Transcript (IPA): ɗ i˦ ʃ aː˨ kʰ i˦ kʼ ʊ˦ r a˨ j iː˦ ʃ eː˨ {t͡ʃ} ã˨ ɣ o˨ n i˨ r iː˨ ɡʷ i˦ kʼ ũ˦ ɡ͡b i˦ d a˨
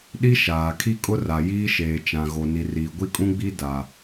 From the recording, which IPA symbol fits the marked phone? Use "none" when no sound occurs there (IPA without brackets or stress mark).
t͡ʃ